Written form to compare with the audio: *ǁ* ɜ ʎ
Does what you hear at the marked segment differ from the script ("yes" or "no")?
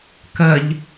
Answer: yes